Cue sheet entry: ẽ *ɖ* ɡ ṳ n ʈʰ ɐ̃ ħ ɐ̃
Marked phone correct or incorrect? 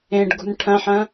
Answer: correct